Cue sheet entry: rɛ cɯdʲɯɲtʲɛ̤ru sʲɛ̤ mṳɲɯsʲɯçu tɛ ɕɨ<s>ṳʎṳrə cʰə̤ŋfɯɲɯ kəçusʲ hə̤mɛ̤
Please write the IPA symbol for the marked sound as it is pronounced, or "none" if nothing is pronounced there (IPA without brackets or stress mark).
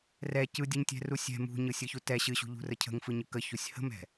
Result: ɕ